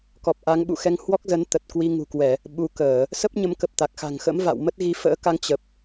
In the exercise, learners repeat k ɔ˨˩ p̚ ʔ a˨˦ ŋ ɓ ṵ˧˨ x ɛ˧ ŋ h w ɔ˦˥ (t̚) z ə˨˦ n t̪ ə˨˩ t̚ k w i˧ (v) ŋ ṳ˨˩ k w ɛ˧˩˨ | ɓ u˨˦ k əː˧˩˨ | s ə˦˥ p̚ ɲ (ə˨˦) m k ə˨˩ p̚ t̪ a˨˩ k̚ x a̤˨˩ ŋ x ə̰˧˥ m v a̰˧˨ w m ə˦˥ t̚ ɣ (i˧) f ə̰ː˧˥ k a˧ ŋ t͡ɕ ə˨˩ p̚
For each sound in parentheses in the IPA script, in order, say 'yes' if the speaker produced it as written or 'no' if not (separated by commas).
no, no, yes, no